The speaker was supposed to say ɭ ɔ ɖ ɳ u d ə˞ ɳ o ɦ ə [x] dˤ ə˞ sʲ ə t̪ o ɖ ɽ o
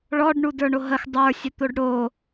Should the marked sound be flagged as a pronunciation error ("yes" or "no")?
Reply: no